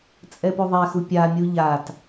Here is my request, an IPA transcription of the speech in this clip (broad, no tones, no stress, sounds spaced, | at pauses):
t͡sʼ ɛ p u ðˤ ɛ x u pʲ a mʲ u ʎ a t